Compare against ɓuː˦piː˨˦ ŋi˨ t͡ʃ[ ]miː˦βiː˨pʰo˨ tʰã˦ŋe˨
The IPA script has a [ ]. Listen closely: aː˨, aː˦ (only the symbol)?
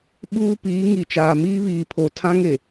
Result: aː˨